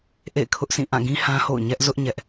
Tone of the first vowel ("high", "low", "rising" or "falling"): falling